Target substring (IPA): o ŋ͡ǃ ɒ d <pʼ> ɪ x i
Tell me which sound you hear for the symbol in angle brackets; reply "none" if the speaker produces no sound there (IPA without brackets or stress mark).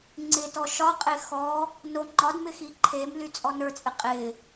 m